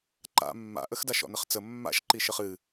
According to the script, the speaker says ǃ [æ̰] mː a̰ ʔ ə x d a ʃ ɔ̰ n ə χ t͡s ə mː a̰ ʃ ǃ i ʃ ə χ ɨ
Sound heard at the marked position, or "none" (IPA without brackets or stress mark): a̰